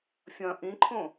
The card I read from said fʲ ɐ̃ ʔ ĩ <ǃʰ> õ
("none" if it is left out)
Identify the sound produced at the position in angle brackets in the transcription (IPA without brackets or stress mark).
ǃʰ